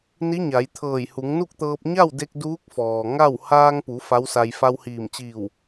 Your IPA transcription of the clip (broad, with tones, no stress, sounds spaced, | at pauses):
n i˧˥ ɲ a˩˧ j t̪ʰ ɤː˧˩ j h u˩˧ ŋ n u˥˨ k̚ t̪ ɤː˧ p̚ ɲ a˥˨ w d e˧ k̚ d uː˧˥ k̚ f ɔː˩ ŋ a˥˨ w h aː˧ ŋ p u˩˧ f a˧˥ w s a˧ j f a˧ w h iː˧˩ m t͡ɕ iː˧˩ w